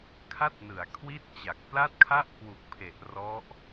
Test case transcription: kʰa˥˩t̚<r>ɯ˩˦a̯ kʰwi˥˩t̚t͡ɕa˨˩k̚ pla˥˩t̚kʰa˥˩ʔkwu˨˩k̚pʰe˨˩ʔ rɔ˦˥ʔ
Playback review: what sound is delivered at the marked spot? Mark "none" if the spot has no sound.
n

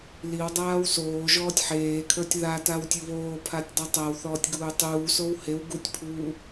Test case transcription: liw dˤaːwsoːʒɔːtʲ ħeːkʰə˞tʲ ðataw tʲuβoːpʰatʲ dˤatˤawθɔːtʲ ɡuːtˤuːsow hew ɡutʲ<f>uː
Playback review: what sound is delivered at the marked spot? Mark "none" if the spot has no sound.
pʰ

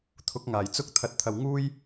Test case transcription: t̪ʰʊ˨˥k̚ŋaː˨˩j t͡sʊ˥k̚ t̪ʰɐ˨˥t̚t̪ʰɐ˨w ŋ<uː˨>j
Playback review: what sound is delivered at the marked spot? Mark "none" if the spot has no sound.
uː˥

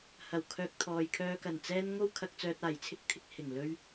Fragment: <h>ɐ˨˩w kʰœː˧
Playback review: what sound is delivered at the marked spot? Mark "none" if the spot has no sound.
h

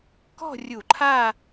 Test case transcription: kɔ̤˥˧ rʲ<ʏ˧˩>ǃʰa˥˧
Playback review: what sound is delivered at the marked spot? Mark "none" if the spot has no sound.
u˧˩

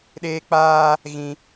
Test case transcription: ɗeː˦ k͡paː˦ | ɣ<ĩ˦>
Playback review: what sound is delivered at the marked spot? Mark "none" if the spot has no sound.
ĩ˦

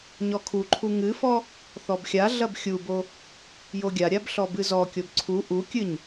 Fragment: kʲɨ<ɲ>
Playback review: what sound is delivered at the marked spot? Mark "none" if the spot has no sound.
ɲ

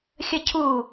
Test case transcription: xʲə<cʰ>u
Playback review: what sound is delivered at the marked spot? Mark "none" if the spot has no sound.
cʰ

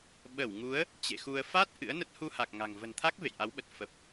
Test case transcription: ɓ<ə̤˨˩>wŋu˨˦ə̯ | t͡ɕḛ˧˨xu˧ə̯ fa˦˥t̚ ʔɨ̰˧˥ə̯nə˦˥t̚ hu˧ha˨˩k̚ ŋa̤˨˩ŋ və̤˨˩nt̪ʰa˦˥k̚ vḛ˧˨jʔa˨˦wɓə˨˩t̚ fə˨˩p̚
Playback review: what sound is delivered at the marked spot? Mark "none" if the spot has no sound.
ə˧˩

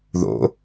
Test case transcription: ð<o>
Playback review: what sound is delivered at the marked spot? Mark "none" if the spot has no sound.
o̰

